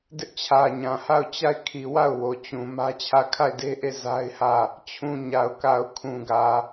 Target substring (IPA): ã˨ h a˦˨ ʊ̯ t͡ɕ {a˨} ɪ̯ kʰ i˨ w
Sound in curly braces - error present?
yes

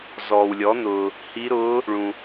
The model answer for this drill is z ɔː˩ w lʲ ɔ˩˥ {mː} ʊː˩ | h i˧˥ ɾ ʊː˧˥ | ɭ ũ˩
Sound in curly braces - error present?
yes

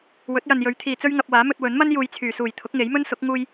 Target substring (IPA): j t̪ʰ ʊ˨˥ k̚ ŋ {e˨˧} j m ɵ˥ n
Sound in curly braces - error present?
yes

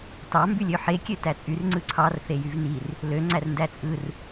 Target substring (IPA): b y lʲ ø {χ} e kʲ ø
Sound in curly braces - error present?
yes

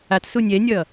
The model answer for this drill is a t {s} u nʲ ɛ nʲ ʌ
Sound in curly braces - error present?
no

